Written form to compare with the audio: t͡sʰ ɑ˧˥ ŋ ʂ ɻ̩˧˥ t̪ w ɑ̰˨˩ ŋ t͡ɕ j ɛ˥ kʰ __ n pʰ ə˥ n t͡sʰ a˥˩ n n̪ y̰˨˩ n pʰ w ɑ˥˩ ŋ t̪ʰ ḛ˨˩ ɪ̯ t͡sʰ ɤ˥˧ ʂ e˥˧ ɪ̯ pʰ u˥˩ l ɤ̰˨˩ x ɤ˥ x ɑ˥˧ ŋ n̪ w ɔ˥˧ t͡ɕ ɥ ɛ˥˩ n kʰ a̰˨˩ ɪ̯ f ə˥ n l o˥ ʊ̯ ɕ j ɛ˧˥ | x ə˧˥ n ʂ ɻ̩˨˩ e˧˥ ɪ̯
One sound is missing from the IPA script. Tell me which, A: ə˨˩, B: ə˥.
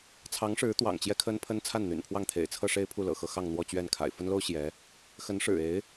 B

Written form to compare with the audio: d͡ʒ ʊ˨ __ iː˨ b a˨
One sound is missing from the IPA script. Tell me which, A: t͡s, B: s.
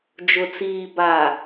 A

